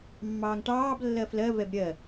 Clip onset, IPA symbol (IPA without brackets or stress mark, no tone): mː